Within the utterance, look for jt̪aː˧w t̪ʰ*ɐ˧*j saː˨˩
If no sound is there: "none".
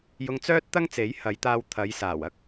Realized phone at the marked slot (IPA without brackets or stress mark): ɐ˨˧